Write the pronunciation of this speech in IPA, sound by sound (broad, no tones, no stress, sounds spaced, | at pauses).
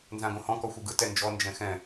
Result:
n z ã ɡ õ h ɔ̃ k ɔ xʷ ɯ ɡ ɯ t ɛ n d͡ʒ ɔ n d͡ʒ ɛ̃ x ɛ̃